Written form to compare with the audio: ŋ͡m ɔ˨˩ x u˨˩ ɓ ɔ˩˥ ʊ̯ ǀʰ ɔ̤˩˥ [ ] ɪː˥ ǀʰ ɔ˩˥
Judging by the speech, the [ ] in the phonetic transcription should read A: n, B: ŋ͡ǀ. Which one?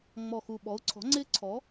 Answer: B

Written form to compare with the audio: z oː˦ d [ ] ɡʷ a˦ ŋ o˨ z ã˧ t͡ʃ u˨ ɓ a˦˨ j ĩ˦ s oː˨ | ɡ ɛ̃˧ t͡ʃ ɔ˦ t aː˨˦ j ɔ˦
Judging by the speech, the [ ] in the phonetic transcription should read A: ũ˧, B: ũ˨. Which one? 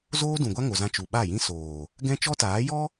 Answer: B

